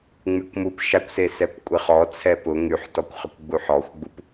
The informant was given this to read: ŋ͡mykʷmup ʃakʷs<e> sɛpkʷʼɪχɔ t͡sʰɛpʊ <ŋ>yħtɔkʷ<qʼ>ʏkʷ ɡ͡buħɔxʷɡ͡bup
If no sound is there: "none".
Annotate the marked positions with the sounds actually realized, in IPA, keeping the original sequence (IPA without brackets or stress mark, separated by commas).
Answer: e, ŋ, χ